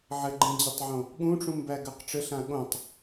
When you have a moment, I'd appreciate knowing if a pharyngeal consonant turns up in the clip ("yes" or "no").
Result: yes